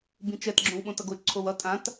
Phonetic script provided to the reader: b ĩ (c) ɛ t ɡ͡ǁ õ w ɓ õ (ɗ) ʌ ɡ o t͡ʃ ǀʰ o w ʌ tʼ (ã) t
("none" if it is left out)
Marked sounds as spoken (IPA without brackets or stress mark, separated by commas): t͡ʃ, t, ã